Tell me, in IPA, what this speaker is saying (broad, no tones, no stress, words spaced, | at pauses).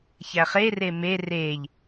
çæχere me reʎ